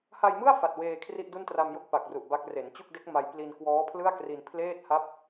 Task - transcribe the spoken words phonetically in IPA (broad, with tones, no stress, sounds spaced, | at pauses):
h a˧ j m ɯ˥˩ a̯ f a˨˩ t̚ w eː˧ kʰ r i˥˩ ʔ d u˥˩ n t r a˧ m j o˦˥ k̚ p a˨˩ k̚ r u˨˩ ʔ b a˦˥ k̚ r e˩˦ n t͡ɕ u˥˩ k̚ d e˦˥ k̚ m a˧ j p l i˧ n k w ɔː˦˥ pʰ l ɯ˥˩ a̯ k r i˧ n pʰ l eː˥˩ t̚ h a˥˩ p̚